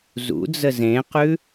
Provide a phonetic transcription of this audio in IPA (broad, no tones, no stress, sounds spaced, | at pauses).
z ṵ d͡z ə z ẽ q ʉ